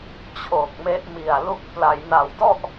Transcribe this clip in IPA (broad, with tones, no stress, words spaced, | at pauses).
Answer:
t͡ɕʰoː˨˩k̚me˦˥ʔmi˨˩a̯lu˦˥k̚ pla˩˦jna˨˩wdɔ˥˩ʔ